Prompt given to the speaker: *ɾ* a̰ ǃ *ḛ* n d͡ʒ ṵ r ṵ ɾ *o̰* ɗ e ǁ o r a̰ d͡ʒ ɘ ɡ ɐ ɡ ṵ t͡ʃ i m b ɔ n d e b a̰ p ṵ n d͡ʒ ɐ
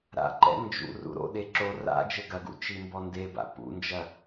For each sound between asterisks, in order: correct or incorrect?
correct, incorrect, correct

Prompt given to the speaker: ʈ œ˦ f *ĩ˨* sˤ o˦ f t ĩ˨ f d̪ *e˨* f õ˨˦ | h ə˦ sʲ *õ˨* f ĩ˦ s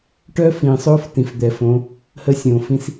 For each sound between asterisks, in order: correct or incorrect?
correct, incorrect, correct

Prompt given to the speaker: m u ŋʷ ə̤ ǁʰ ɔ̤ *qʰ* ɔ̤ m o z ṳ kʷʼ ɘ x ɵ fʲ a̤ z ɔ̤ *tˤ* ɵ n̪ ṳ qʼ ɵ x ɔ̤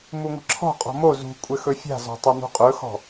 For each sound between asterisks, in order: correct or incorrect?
incorrect, correct

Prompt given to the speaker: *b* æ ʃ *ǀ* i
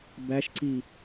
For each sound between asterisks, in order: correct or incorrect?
correct, correct

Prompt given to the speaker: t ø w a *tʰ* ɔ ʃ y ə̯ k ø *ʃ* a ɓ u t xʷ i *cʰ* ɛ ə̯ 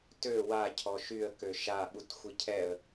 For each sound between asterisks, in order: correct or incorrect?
incorrect, correct, correct

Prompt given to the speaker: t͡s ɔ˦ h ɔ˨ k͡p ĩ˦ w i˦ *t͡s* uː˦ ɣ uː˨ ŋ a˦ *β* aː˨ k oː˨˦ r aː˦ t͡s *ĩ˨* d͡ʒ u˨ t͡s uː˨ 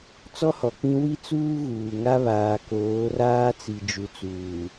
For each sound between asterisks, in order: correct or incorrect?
correct, correct, incorrect

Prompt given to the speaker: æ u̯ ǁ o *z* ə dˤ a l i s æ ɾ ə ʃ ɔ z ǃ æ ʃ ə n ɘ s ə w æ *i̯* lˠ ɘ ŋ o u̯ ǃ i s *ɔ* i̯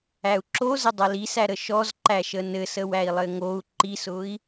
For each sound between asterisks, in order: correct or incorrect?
correct, correct, incorrect

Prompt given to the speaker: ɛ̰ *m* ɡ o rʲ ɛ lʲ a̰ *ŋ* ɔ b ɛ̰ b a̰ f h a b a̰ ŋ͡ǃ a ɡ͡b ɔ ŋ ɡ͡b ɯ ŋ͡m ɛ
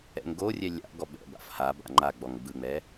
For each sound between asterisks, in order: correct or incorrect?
incorrect, incorrect

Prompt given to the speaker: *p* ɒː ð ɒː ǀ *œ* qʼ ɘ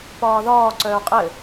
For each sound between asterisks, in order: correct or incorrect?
correct, incorrect

